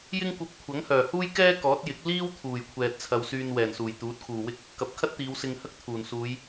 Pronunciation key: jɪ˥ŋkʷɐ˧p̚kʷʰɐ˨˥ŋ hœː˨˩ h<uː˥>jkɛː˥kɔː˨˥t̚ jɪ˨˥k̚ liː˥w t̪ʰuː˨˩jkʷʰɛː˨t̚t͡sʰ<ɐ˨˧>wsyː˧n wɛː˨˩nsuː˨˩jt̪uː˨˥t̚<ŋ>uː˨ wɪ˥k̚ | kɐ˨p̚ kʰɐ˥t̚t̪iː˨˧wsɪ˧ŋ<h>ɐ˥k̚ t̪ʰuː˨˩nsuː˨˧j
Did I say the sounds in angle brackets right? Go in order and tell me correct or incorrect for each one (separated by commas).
correct, correct, incorrect, correct